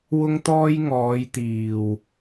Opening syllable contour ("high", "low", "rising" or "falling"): high